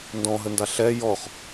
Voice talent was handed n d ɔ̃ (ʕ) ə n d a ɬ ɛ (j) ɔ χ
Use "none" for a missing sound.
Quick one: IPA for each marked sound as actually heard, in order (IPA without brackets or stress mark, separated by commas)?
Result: ɦ, j